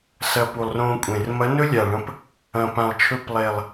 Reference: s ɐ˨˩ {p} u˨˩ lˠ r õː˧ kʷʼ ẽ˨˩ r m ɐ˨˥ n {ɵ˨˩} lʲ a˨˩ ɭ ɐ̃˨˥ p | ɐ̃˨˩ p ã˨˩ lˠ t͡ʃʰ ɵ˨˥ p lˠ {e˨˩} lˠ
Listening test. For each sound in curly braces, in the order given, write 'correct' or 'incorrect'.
correct, incorrect, correct

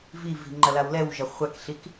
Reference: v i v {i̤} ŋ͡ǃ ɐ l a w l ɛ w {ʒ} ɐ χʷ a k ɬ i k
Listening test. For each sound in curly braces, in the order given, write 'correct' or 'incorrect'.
correct, correct

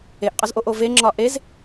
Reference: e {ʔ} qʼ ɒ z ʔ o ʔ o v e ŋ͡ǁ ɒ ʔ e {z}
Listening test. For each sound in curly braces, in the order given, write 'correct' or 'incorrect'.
correct, correct

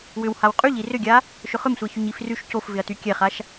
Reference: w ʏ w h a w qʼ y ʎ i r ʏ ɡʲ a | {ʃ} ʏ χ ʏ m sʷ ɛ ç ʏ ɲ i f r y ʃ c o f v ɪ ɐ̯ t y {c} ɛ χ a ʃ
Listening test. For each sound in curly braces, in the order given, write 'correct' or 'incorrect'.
correct, incorrect

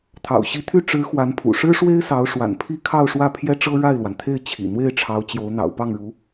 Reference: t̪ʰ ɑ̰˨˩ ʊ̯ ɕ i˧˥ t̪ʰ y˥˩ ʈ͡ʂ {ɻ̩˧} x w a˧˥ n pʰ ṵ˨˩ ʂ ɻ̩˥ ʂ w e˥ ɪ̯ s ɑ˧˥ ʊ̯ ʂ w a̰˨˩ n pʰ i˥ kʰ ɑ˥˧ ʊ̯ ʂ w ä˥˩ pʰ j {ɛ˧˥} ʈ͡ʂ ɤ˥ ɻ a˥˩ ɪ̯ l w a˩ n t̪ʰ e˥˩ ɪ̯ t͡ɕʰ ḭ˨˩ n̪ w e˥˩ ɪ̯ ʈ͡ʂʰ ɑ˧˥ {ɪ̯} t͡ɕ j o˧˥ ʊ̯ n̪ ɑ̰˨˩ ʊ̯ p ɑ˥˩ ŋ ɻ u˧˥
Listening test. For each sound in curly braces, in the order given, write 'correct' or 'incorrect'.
incorrect, incorrect, incorrect

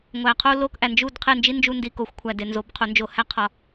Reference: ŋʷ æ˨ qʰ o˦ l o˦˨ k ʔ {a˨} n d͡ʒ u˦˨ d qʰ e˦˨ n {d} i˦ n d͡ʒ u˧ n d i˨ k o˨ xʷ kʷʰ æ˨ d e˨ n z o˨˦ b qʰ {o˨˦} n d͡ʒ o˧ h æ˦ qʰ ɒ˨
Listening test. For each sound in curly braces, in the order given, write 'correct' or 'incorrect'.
incorrect, incorrect, correct

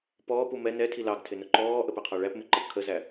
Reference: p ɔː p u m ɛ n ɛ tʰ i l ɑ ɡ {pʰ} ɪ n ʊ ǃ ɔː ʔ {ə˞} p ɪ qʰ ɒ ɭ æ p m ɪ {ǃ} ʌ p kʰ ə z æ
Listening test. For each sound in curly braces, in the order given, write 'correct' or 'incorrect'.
incorrect, incorrect, correct

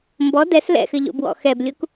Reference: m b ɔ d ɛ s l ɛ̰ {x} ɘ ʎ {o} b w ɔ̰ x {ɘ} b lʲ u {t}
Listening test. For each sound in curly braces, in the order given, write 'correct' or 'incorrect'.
correct, incorrect, incorrect, incorrect

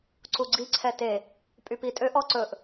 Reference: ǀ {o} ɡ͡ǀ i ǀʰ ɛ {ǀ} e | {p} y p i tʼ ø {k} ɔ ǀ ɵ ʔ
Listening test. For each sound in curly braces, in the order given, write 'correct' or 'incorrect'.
incorrect, incorrect, incorrect, incorrect

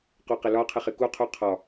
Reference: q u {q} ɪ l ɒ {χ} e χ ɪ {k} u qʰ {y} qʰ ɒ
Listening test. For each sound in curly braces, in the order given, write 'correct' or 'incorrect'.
correct, incorrect, correct, incorrect

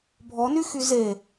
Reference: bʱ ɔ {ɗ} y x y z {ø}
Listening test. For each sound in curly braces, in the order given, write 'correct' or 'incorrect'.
incorrect, incorrect

